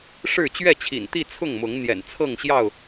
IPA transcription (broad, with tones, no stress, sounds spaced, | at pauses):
ʂ ɻ̩˥˨ t͡ɕ ɥ ɛ˥˨ t͡ɕʰ ḭ˨˩ n t̪ i˥˨ t͡sʰ ʊ˥˨ ŋ m ʊ˨˦ ŋ n̪ j ɛ̰˨˩ n t͡sʰ ɤ˥˨ ŋ ɕ j ɑ˥˨ ʊ̯